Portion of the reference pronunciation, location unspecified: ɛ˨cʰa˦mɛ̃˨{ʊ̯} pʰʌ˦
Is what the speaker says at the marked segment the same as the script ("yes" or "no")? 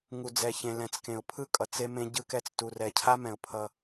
yes